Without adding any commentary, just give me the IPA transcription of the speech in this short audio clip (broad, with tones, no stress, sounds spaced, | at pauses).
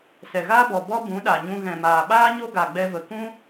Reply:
s ɛ˨ ɣ aː˦ b ɔ˨ b ɔ˦ b ũ˨˦ ɗ a˨ ɲ ũ˧ ɣ ɛ̃˨ m aː˨ ɓ aː˦ ɲ o˦ ɡ a˨ ɡ͡b ɛ˧ v ə˨ k ũ˦